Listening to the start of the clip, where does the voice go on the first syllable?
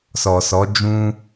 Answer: low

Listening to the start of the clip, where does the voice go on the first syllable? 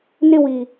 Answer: high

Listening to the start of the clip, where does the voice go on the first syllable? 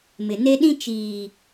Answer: low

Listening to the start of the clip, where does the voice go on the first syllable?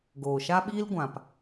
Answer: low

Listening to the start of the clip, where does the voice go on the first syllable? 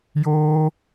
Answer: high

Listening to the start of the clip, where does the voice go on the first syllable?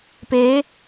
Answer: rising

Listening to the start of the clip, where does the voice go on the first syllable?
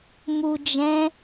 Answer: low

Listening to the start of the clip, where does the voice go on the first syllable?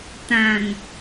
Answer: low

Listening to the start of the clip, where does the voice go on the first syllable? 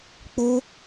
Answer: high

